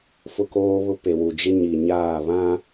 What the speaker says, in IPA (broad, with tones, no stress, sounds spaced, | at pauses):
f ʊ˦ k oː˦ β ʊ˦ p e˨ w u˨ d͡ʒ ɪ˦ ɲ i˨ ɲ aː˦˨ β ã˦